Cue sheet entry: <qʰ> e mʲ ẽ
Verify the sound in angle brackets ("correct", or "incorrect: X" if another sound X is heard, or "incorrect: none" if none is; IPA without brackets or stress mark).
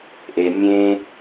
incorrect: ʔ